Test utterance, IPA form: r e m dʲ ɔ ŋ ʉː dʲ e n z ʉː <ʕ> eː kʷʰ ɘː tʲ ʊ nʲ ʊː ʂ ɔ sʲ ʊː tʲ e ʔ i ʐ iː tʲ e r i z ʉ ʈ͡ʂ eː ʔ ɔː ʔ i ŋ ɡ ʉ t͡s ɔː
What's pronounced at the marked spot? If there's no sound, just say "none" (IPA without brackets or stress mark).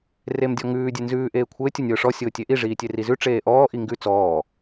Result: ʔ